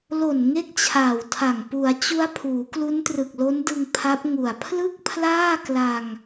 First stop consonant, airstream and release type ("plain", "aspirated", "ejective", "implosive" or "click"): plain